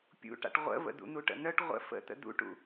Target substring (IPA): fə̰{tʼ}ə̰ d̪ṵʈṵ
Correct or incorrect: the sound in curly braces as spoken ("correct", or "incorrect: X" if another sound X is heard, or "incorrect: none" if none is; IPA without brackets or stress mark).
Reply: incorrect: t̪